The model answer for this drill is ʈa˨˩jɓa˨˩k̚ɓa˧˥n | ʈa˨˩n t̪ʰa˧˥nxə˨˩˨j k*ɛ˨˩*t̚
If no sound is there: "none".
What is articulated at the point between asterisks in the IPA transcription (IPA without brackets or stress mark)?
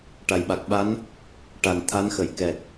ɛ˨˩